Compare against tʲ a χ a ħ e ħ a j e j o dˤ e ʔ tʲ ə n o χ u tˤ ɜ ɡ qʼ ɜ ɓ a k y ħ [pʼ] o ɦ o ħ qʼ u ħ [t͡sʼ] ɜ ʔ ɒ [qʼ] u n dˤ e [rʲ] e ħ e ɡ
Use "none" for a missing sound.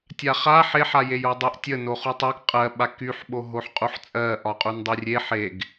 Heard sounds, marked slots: ɓ, t͡sʼ, qʼ, rʲ

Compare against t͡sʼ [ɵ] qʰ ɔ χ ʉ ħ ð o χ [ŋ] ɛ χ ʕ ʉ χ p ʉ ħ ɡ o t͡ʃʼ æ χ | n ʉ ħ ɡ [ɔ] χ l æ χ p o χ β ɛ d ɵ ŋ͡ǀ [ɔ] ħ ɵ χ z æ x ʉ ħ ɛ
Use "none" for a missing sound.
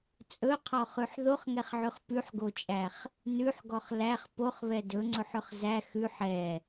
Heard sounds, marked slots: ɵ, ŋ, ɔ, ɵ

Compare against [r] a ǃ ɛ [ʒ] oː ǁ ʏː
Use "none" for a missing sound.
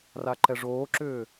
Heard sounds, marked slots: r, ʐ

